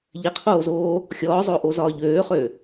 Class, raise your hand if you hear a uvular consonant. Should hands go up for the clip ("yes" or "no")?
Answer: yes